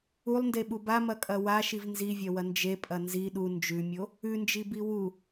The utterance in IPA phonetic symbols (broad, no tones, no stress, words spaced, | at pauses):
ulˠndeɓu bamɐkʼɐ waʃiv nzivʲɐwɐ nd͡ʒepʼɐ nzi ɗu nd͡ʒʉmʲo | ʉnd͡ʒibi wu